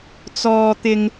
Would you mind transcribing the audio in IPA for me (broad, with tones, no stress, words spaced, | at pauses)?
t͡sɔː˧t̪ɪ˧ŋ